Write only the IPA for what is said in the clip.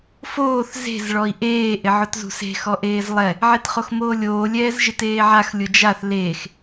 f oː θ z e̤ z ɭ ɔ i̯ ʔ eː ʔ ɪ ʕ ʊ t z ṳ s e̤ x ɔ ʔ eː z lˠ ɛ | ʕ e t χ o x m oː lʲ oː lʲ ɛː z ʒ ɪ t eː ʕ a x lʲ ʊ d͡ʒ a θ l eː x

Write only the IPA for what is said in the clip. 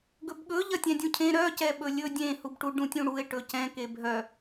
ɡ ɵ b ɠ ɵ ʎ ɐ tʲ ɛ̃ dʲ ũ cʰ ẽ ɾ œ c ɛ ɓ ɵ lʲ ɵ dʲ ẽ h u b ʈ u ɖ ũ tʲ ũ ɽ u e̯ ʈ ɵ c ɛ̃ k e bʱ œ

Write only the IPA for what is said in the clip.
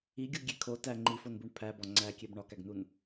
i ɡʲ u ɡʲ e kʰ o t æ ŋ͡ǃ i f o n b u ɳ pʰ æ b ɒ ŋ͡ǀ æ kʲ e b ɳ ɒ k æ ɡ n u n

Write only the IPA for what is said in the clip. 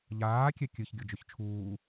ʎ aː kʲ ɛ kʲ ɨ ç ɡʲ o d͡ʒ y ç t͡ʃʰ uː

